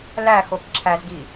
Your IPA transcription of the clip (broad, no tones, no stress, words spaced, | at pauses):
læxok ǁʰæzɡi